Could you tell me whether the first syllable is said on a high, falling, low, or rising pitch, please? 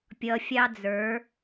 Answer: low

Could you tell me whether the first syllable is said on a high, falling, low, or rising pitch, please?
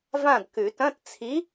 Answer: falling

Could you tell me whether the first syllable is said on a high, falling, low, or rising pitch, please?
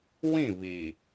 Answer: falling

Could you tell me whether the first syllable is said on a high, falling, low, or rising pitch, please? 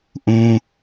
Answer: high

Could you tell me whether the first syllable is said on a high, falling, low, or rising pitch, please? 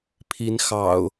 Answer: rising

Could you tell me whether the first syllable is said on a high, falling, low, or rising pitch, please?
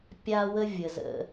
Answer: high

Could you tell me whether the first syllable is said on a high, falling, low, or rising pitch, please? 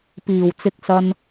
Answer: low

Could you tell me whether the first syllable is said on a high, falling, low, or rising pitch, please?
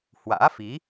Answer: rising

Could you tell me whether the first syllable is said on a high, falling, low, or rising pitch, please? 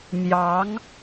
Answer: rising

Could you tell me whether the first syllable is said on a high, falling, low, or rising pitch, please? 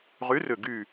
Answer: rising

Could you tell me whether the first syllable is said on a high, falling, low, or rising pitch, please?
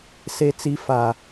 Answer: high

